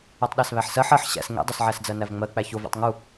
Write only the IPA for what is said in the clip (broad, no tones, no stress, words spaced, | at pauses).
otˤɗæsβæħsɜħ ɜħ ɕæ̰s ŋḛdˤosʕæsd͡zɜ nævŋ͡mɜk͡pæ çovḛtˤ ŋu